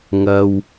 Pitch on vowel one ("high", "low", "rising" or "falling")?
low